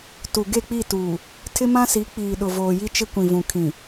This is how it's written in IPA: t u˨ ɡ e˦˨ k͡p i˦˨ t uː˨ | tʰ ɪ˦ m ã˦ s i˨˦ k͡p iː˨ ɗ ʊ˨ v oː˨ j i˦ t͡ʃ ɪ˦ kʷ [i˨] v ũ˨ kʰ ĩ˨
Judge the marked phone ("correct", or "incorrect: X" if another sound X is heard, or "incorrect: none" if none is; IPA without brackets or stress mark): incorrect: ĩ˨